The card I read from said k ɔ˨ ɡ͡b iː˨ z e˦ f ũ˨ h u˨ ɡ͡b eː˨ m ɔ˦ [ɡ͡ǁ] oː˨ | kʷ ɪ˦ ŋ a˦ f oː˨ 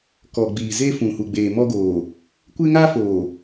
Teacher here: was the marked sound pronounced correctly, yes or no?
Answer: no